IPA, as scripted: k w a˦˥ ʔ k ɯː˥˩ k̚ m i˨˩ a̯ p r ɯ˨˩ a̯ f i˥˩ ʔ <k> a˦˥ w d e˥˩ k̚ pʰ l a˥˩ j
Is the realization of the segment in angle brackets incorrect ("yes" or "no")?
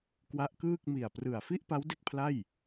yes